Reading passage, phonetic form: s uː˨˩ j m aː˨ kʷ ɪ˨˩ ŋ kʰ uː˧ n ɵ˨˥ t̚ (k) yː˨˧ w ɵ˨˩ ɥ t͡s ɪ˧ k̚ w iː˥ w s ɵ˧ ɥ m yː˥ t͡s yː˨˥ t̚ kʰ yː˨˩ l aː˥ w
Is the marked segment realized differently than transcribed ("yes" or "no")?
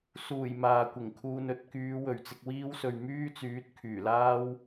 no